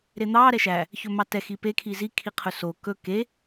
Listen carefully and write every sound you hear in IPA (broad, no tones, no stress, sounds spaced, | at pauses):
ɾ e n̪ ɑ ɾ ɛ ʃ æ | ç ɵ m ɑ t ɛ x i p e kʰ i z i kʰ i qʰ ɵ s o k ɵ k e